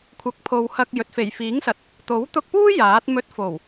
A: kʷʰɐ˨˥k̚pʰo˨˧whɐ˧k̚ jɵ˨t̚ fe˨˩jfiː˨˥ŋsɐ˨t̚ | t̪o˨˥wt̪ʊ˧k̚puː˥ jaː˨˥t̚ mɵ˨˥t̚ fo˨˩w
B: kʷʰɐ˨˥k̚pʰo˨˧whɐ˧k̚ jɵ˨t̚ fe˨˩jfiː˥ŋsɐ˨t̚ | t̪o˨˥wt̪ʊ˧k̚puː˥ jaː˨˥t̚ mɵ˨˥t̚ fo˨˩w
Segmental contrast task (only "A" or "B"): A